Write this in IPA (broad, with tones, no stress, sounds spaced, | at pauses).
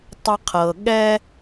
tˤ ə˦ qʰ ɤ˨ ɠ ɛ˥